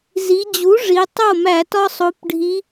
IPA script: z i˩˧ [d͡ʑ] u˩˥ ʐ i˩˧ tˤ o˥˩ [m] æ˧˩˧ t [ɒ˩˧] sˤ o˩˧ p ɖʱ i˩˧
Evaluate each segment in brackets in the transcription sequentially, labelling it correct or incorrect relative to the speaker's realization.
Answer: correct, correct, incorrect

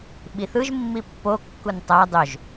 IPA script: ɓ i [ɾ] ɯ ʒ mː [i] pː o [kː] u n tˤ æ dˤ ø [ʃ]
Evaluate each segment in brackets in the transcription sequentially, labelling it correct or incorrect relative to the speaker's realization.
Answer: incorrect, correct, correct, incorrect

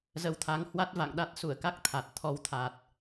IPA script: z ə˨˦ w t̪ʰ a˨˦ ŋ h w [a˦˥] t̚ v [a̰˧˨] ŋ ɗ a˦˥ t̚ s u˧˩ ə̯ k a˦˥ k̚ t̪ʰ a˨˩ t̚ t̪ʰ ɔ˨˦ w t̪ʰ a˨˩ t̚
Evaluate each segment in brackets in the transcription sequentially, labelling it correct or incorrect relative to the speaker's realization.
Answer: correct, correct

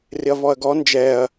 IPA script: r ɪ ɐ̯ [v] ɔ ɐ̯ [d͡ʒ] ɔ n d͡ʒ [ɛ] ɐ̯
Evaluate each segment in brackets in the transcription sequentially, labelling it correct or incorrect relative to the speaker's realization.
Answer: correct, incorrect, correct

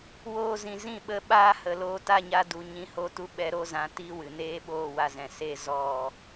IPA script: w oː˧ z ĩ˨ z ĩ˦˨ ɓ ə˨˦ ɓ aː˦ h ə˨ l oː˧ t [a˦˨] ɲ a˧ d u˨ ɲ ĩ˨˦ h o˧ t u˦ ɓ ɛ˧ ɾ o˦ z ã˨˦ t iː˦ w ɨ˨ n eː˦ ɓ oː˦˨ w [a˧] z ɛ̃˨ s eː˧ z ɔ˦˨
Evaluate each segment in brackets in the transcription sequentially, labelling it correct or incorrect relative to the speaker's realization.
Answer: correct, correct

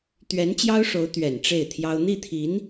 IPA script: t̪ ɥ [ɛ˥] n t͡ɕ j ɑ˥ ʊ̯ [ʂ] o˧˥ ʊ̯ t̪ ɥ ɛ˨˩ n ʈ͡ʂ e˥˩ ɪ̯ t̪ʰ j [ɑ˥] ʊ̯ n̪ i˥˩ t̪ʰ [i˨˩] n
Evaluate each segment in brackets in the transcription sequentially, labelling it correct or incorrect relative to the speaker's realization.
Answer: incorrect, correct, correct, incorrect

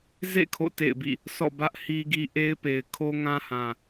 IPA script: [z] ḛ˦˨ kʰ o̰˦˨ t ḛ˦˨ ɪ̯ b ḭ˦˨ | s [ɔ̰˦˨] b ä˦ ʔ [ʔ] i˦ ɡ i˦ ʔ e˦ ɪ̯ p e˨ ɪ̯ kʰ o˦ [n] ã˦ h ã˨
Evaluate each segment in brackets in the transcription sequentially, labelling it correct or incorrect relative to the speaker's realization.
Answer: correct, correct, incorrect, incorrect

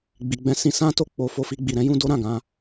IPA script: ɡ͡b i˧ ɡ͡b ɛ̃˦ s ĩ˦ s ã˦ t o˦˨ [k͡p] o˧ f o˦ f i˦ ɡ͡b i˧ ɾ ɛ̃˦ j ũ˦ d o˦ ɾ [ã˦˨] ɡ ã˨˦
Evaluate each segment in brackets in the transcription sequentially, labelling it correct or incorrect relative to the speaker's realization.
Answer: correct, correct

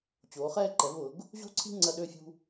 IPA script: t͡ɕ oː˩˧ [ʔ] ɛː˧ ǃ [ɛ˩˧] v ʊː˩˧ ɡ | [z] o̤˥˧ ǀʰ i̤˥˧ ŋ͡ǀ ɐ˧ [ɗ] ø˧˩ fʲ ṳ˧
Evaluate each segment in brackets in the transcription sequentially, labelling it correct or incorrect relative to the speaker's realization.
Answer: incorrect, correct, incorrect, correct

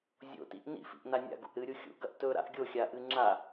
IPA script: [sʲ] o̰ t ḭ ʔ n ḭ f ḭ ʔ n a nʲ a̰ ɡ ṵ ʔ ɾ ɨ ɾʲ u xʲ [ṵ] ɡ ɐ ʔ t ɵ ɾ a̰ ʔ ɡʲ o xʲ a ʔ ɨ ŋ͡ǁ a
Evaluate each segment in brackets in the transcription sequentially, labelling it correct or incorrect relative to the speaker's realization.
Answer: incorrect, correct

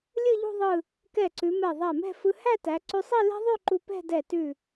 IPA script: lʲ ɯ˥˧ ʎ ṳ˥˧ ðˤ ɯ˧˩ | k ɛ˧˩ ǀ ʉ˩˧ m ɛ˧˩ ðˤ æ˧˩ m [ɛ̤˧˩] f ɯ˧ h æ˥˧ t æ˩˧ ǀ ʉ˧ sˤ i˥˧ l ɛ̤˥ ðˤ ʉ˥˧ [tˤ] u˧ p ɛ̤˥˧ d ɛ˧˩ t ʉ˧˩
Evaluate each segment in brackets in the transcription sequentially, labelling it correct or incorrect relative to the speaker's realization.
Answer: incorrect, incorrect

